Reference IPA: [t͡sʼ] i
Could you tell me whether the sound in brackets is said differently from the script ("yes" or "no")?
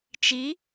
yes